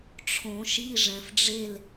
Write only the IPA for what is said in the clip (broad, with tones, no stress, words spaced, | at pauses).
ʈ͡ʂʰõ˨˩˦ʃi˧˥˧ʐɛ̃˨fɖ͡ʐe˥˧l